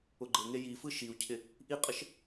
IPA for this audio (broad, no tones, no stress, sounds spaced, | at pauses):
ʊ ɡ͡ǃ e ŋ e j i f ɯ ʃ i u̯ cʰ ɪ | ʔ i qʼ ə ʃ